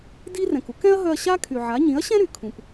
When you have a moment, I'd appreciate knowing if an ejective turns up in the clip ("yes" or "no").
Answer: no